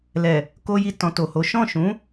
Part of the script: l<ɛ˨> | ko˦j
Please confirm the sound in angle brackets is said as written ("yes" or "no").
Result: yes